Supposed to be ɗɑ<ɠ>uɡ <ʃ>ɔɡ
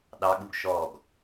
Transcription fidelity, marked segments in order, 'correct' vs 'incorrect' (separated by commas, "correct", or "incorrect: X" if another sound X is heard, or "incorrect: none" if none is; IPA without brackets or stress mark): correct, correct